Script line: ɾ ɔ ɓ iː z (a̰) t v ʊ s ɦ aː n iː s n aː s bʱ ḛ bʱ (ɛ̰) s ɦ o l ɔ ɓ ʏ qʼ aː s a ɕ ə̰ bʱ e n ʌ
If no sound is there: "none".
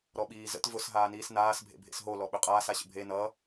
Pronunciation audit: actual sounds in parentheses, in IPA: ə̰, ḛ

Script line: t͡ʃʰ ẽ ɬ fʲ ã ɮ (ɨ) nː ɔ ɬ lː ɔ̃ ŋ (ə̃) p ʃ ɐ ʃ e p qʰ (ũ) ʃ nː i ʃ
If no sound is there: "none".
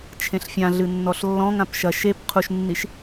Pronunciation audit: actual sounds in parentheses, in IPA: ɨ, ã, u

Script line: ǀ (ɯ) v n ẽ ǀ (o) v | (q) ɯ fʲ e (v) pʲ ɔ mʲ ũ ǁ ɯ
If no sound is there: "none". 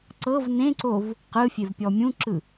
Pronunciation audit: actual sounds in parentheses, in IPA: ɤ, o, q, v

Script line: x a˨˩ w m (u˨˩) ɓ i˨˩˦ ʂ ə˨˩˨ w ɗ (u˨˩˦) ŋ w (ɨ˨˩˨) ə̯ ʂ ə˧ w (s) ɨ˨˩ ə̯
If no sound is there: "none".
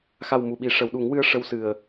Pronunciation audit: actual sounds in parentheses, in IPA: u˨˩, u˨˩˦, ɨ˧, s

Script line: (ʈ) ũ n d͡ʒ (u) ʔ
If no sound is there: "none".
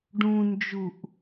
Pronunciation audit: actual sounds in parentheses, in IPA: ɖ, u

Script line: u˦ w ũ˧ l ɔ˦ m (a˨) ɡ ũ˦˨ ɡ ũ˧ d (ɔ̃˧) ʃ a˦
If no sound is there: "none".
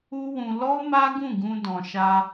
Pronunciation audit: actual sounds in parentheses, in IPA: a˦, ɔ̃˧

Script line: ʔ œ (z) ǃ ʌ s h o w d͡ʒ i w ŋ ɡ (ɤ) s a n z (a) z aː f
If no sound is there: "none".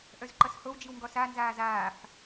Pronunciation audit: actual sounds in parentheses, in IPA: z, ɔ, aː

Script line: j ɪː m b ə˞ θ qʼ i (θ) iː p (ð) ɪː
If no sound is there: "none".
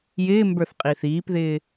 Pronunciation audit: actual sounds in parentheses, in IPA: θ, ð

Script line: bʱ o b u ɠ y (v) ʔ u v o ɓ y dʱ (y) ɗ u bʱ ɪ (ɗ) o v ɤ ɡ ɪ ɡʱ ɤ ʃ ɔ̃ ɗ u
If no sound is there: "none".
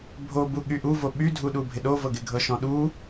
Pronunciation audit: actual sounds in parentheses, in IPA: none, u, ɗ

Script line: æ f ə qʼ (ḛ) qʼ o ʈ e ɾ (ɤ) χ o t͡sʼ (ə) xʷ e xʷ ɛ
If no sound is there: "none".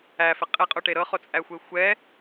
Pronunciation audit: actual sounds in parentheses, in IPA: e, ɤ, æ

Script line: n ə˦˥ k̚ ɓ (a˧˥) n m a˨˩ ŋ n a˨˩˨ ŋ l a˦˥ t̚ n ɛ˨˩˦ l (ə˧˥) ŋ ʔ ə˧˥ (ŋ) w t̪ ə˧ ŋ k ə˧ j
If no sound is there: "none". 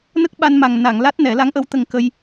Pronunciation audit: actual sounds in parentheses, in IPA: a˧, a˧˥, none

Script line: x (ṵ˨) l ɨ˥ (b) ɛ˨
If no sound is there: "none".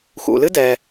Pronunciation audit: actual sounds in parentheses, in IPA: ṵ˨, d

